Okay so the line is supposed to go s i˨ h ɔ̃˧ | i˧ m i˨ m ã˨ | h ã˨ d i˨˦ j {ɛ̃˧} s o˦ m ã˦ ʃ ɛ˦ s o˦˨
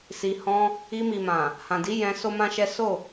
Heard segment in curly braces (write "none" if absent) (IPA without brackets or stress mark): ɛ̃˧